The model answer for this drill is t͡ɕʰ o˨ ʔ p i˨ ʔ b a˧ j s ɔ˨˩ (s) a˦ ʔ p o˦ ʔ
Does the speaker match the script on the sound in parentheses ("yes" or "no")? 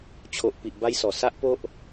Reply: yes